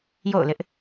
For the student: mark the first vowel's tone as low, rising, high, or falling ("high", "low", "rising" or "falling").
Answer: falling